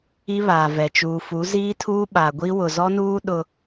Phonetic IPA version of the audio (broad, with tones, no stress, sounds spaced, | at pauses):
i˦ β aː˨ v ɛ˨ t͡ʃ uː˨ f u˨˦ z iː˦ tʰ uː˦ ɓ a˨ ɡʷ i˦ w ʊ˨ z ɔ˦ n uː˦ ɗ ʊ˦